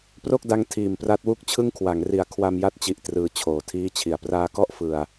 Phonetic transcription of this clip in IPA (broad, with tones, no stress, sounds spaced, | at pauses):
p r o˥˩ k̚ d a˦˥ ŋ tʰ iː˨˩ m p r a˦˥ t̚ w u˥˩ k̚ t͡ɕʰ ɯ˥˩ ŋ kʰ w a˩˦ ŋ r i˨˩ a̯ kʰ w a˧ m j a˦˥ t̚ t͡ɕ i˨˩ ʔ t r ɯː˧ t͡ɕʰ oː˨˩ tʰ iː˥˩ t͡ɕʰ i˨˩ a̯ p r aː˧ k ɔ˥˩ ʔ f ɯ˧ a̯